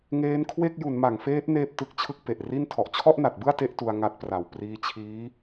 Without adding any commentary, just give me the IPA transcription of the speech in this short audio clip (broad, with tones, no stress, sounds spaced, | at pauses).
ŋ eː˦˥ n kʰ w e˥˩ k̚ j u˩˦ n m a˩˦ ŋ f eː˦˥ t̚ n eː˥˩ p̚ t ɯ˥˩ k̚ t͡ɕʰ ɯ˥˩ k̚ p e˨˩ ʔ r i˥˩ n tʰ ɔ˨˩ ʔ t͡ɕʰ ɔ˥˩ ʔ n a˨˩ t̚ b ɯ˥˩ a̯ t e˦˥ ʔ t u˧ a̯ ŋ a˦˥ t̚ p r a˨˩ w p r iː˧ t͡ɕʰ iː˦˥